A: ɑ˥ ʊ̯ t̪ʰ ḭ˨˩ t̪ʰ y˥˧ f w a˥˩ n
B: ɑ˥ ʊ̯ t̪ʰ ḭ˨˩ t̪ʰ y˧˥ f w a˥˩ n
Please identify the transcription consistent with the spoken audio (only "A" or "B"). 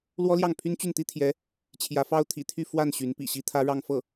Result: A